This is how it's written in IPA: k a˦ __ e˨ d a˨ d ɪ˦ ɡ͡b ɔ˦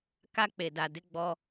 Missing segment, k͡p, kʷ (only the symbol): k͡p